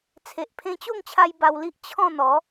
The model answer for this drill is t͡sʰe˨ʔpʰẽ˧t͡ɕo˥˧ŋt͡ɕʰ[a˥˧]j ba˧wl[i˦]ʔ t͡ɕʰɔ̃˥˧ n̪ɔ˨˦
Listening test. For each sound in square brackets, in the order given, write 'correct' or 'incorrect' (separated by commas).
incorrect, correct